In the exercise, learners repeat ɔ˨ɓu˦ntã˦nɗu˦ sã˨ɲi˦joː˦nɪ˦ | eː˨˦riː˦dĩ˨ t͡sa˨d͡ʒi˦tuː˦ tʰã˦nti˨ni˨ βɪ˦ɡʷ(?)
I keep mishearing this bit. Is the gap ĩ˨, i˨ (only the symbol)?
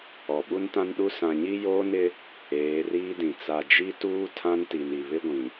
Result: ĩ˨